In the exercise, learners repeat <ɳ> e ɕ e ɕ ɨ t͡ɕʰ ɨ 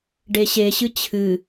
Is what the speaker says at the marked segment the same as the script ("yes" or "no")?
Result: no